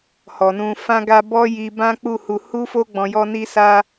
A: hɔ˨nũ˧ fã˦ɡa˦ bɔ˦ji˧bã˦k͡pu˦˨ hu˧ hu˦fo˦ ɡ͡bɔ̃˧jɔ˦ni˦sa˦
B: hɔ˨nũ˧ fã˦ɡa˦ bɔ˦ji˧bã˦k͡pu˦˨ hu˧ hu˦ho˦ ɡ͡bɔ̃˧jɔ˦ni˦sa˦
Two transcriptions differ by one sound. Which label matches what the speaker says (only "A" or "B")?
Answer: A